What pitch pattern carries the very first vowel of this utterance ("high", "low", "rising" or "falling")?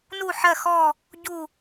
falling